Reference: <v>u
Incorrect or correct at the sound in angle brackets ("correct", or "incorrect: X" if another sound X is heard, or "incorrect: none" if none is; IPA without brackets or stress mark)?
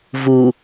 correct